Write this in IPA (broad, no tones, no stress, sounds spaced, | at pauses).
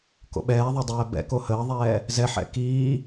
k o̰ ɓ ɛː ðˤ o dˤ ɛː b ɛ̰ k o h əː ðˤ ɛː | z ɛ ħ ɛ̰ k iː